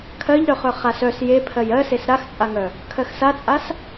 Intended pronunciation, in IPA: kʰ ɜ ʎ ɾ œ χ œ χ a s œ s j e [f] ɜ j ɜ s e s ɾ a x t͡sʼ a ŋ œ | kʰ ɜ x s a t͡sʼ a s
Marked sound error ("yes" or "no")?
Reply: yes